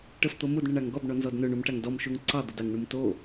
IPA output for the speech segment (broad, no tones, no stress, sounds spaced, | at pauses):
ʈ ə f t̪ o m u d ɳ ə ɳ a ŋ ɡ ɔ b ɳ ɔ n z ɔ d n ɵ ɳ u m ʈ a ŋ d ɔ m ʃ u ŋ ǀ ɑ d̪ ə d ɑ ŋ ɳ u m t o